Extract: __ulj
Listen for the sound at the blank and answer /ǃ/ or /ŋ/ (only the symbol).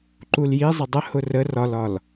ǃ